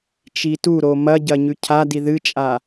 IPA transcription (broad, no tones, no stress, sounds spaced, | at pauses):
t͡ʃ i t u ɾ o m ɐ ɟ ɐ ɲ ʉ cʰ a d i ð ɨ t͡ʃʼ a